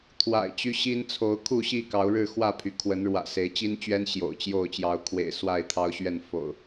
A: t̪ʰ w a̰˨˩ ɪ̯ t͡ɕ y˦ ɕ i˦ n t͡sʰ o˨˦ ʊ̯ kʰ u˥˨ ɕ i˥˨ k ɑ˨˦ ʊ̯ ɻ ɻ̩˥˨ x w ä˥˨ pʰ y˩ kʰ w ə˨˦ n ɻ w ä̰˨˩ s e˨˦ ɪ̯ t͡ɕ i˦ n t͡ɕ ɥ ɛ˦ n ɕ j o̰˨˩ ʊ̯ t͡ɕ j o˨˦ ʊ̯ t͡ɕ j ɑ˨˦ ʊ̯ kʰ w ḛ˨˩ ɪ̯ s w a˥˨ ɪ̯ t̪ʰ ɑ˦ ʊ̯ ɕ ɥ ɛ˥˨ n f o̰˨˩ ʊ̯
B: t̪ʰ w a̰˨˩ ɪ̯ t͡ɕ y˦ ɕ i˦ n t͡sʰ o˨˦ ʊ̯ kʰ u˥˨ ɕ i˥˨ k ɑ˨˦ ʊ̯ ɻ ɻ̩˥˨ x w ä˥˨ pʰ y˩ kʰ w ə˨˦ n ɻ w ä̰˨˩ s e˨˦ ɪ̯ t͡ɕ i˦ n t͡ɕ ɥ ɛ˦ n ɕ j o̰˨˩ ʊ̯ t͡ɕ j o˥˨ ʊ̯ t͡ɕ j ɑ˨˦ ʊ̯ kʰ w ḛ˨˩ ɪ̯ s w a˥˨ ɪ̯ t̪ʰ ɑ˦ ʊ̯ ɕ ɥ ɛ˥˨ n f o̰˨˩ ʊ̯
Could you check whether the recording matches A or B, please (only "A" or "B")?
B